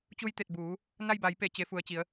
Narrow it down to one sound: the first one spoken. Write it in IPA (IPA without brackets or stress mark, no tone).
t͡ɕ